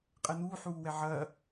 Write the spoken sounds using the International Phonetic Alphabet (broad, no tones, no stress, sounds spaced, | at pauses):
qʼ ɛ n uː ħ uː w ɛ ʕ ɐː